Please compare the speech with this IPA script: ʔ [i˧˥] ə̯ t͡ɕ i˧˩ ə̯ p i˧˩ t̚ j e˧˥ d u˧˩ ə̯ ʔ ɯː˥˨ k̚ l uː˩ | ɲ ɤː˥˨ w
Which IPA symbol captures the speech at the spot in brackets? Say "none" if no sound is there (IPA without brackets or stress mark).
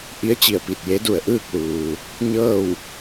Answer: i˧˥